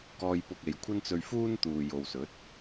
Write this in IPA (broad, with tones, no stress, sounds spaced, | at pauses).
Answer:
k ɔː˧ j p ʊ˧ k̚ e˨ j kʷʰ ɐ˥ n t͡s ɵ˧ ɥ f uː˥ n t̪ uː˨ j o˨ w s ɵ˨˥ t̚